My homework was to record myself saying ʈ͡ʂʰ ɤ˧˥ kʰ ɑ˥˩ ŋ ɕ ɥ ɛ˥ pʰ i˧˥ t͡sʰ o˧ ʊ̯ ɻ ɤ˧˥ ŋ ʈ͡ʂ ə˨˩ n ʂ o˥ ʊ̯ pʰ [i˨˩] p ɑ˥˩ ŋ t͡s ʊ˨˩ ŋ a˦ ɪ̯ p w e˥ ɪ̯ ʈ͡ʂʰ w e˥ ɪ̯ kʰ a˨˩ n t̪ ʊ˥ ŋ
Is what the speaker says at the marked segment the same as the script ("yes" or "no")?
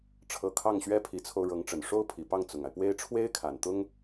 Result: yes